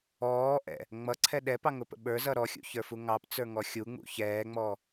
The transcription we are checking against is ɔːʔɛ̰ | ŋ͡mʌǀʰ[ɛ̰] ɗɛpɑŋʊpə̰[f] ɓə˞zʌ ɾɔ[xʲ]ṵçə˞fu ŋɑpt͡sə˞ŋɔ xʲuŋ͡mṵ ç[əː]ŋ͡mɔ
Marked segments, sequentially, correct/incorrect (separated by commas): incorrect, incorrect, correct, incorrect